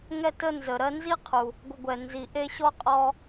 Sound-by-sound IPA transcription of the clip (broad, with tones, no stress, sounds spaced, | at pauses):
ŋ ɛ˦ t ə˦ n z ə˩ ɾ ɜ˦ n z i˥ qʰ u˩ | ɡʷ ə˨ ɡʷ ɛ˩ n z i˩ ʔ e˦ ɕ ɔ˥ qʼ ɔ˦